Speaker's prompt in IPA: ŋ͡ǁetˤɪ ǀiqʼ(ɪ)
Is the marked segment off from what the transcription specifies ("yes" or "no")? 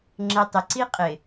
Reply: no